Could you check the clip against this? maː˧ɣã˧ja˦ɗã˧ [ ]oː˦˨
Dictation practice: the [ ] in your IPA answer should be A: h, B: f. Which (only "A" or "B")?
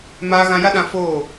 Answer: B